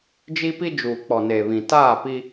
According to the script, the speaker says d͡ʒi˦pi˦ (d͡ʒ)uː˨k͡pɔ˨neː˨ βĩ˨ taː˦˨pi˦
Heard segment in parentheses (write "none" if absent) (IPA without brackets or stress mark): d͡ʒ